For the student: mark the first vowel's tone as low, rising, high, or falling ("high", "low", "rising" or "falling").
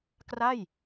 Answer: falling